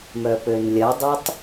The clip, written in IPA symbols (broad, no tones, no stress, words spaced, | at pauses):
mœpønlʲɐdˤatˤ